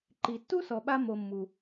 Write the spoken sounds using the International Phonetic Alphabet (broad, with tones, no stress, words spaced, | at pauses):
ǃi˨ tːu˥ sɔ˨ɓa˦ mo˨mːu˩